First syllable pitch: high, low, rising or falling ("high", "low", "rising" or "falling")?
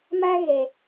high